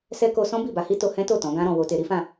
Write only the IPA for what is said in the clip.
s ɛ˧ k o˧ s ɔ̃˦ b i˦˨ b a˧ h i˦ t o˧ h ɛ̃˦ t o˦˨ t ɔ̃˨˦ ɡ ã˦ ɾ ɔ̃˧ w o˧ t e˧ ɾ i˦ f ã˦˨

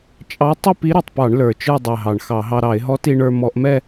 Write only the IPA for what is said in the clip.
t͡ʃʼ ɑ˧˥ tˤ ʏ˥˧ p i˧˥ ɾ ɛ˨˩ tˤ p ɑ˧˩˧ ɳ l ə˞˨˩ t͡ʃ ə˞˥˧ dˤ ɛ˨˩ ɦ ɑ˨˩ ɳ x ɑ˧˩˧ ɦ ɑ˧ ɾ ɑ˧˩˧ ɪ̯ ɦ ɔ˧˥ t i˧ ɳ ə˞˧ m ɔ˧˩˧ ʔ m ɛ˥˧

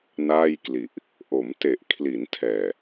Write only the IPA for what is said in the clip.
n aː˥˩ j k l i˨˩ ʔ | ʔ o˩˦ m t e˨˩ ʔ kʰ l i˩˦ n tʰ ɛː˨˩

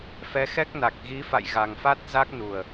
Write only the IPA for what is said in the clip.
f ɛ˨˦ x ɛ˦˥ k̚ n a˨˩ k̚ ɣ i˨˦ f a̰˧˨ j ɣ a˨˩ ŋ f a˦˥ t̚ z a˦˥ k̚ n u˨˩ ə̯

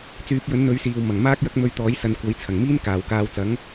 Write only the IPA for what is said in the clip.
t͡s yː˨˥ p̚ j ɵ˨˥ n n̪ ɵ˨˧ ɥ s iː˨ w m ɐ˨˩ ŋ m aː˥ k̚ j ɐ˥ k̚ m ɵ˧ ɥ t̪ ɔː˨˥ j s ɐ˨ n kʷ ɐ˨˥ j t͡sʰ ɐ˨˩ ŋ m iː˥ n k aː˨˩ w k aː˨˧ w t͡s ɐ˨˥ ŋ

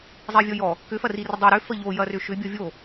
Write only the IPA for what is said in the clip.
zˤ i vʲ ɔ j ɔ | k ʏ f ɐ r i r ə dˤ ʏ ɾ ʏ f ə ʎ o j ɐ r ʏ ʃ ʏ bʲ ɔ vʲ o

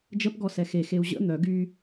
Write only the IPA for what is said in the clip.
d͡ʒ ə p ɡ ɔ s ɛ x e x e u̯ ʑ ə̰ n̪ œ ɡ y

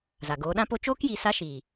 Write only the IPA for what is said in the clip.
z a˨ ɡ oː˨˦ ɗ ã˦ p o˧ t͡ʃ oː˦ k j i˨ s a˧ ʃ iː˨

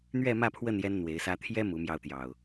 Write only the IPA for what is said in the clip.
n̪ ɥ ɛ˥˨ m ä˥˨ pʰ w ə˥˨ n j ɛ˦ n n̪ w e˨˦ ɪ̯ s ä˦ t̪ʰ j ɛ˦ m u˨˦ m j ɑ˧ ʊ̯ t̪ j ɑ˨˩ ʊ̯

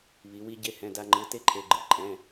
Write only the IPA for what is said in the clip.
β i˩˧ w i˧ ɟ e˧ h ɛ̃˩˧˩ d a˧ ŋ͡ǃ ɯ˩˧˩ t e˥˧ ǃʰ e˩˧˩ ɡ͡ǃ ɯ˩˧ ǃʼ ɛ̃˩˧˩

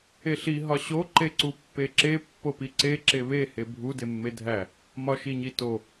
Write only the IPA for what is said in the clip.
e ɬ i ɦ ɒ ɕ o ǃ e ǀ u pː e ǁ e pː o p i ǀ e ǁ e β e h e bʱ u d e mː e dʱ æ | m ɒ ʃ i ɲ i t o

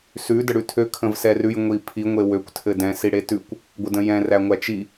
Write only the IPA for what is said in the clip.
s ʉ d ə ɽ ʉ tʰ ø kʰ ə̃ v s ɛ r ʉ j ŋʷ i pʰ i ŋʷ e w ø kʷ tʰ ɘ d ɛ̃ s i ɽ e t ʉ kʷ | ɡʷ ɘ d ə̃ j ɛ̃ r æ ŋʷ æ t͡ʃ i

